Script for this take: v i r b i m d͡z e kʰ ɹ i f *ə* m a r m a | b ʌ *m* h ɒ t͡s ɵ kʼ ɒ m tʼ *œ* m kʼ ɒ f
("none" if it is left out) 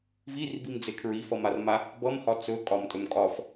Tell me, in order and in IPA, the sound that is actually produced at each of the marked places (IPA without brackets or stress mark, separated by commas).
ʌ, m, ɵ